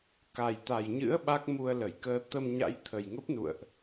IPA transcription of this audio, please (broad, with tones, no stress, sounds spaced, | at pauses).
k a˨˩ j t̪ a˨˩ j ɲ ɨ̰˧˥ ə̯ ɓ a˦˥ k̚ m u˧ ə̯ l ə˧˩ j k əː˧ t̪ ə˧ m ɲ a̰˧˥ j t̪ʰ ə˨˩ j ŋ ə˦˥ p̚ n ṵ˧˨ ə̯ ʔ